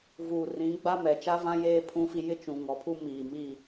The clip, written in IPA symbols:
vuː˨ rĩ˨˦ ɡ͡ba˦mɛ˨ t͡ʃa˦vã˦ jeː˦ pʰũ˦fi˦ jɪ˦t͡ʃũ˨ ŋɔ˨˦pʰu˦ miː˨mi˦˨

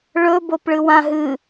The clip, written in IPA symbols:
ɭɵbop ɭɨwãɦɨ

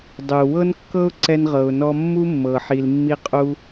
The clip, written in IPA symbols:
dˤu˩wɤ˥nkːɤ˥ʊ̯ ǀɛ˧nʁɤ˩ʊ̯nɔ˧ mːu˥mːɤ˩ ħi˩lmːi˧qʼu˧

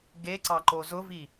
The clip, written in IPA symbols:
ɡe ǀɑǃozʊvi

